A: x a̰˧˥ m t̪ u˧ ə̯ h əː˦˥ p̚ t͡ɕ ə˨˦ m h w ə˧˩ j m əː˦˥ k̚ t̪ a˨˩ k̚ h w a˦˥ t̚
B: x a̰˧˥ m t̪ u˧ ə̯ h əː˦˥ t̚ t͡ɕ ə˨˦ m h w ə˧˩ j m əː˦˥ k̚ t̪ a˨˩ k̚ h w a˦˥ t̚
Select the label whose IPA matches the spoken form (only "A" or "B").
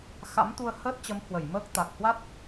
B